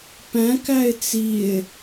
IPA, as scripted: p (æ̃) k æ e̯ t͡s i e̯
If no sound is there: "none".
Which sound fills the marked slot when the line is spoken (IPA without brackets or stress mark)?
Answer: æ̃